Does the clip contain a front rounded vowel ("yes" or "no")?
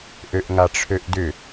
yes